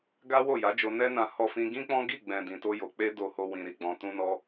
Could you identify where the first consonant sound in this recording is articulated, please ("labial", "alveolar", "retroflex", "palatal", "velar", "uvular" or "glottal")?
velar